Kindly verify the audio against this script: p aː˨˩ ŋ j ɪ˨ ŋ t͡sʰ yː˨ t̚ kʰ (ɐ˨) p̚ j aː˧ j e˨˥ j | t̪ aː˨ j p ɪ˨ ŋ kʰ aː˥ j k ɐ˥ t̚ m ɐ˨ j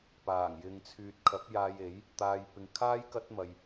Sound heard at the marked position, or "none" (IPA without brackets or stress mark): ɐ˨˥